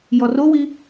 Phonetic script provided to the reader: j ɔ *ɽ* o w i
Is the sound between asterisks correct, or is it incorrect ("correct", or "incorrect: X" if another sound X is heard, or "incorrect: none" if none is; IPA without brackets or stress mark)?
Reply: incorrect: r